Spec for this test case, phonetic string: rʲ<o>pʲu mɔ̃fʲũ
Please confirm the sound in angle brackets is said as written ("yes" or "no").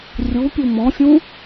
no